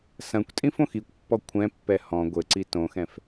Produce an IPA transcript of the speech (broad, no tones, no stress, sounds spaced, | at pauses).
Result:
s ɐ̃ kʷ tʼ ĩ f õ x i kʷ pː ɔ kʷʰ ɛ̃ pː ɛ h ɔ̃ ɡʷ ɘ ǀ i t õ x ɛ̃ f